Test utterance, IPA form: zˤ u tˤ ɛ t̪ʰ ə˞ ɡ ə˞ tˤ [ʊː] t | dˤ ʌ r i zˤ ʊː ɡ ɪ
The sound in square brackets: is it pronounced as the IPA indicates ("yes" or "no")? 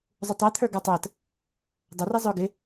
no